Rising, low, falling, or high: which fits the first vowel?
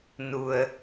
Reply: low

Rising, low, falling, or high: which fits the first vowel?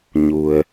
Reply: low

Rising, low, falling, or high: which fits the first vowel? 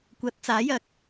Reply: rising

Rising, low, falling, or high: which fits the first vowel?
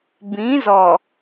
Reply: rising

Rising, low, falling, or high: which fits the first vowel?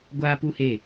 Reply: high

